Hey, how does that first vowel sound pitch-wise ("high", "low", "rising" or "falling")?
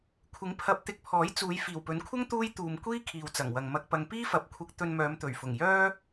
rising